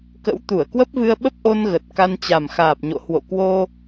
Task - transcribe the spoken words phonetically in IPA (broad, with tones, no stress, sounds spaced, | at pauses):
k ə̰˧˥ w t̪ u˧˩ ə̯ k w ə˦˥ p̚ v ɨ˧ ə̯ ɓ ə˦˥ p̚ ʔ o˧ n ɣ ə˨˩ t̚ k a˧ n t͡ɕ a˨˩ m x aː˨˩ p̚ ɲ o̰˧˨ h w o̰˧˨ k w o˧